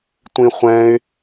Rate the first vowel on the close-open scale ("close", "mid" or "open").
close